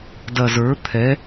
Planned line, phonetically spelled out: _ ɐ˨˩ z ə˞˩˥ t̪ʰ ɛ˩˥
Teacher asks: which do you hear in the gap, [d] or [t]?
d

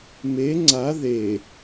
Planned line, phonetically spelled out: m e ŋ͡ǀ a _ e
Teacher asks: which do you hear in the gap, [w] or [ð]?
ð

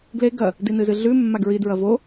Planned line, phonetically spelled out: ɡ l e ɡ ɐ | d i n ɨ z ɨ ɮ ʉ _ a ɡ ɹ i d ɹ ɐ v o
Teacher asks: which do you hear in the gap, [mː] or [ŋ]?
mː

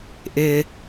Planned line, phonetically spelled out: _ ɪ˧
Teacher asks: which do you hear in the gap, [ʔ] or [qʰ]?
ʔ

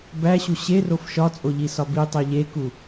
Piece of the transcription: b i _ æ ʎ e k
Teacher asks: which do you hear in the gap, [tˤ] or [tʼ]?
tˤ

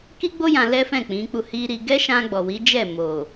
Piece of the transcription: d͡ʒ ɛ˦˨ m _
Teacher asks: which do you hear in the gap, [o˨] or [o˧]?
o˨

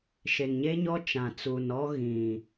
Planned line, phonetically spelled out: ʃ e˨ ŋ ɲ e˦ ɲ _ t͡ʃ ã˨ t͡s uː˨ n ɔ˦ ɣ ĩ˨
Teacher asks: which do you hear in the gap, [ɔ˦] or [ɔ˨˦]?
ɔ˦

